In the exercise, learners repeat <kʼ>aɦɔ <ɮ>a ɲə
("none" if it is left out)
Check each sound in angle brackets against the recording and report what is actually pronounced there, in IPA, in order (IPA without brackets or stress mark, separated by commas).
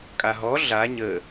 kʼ, ɮ